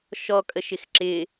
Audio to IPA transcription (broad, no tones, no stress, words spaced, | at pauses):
ʃɔkʼəʃɪx ǁɪ